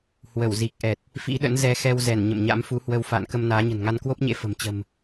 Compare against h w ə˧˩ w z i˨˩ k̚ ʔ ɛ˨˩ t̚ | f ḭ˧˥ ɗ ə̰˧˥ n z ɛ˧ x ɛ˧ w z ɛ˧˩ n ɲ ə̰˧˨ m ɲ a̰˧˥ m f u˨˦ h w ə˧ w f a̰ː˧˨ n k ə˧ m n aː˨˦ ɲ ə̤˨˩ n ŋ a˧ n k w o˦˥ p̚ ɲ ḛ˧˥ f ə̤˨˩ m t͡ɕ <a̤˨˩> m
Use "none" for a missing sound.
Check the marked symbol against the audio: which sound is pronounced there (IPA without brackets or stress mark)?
ə̤˨˩